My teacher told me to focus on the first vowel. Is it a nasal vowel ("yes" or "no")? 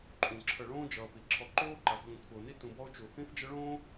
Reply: yes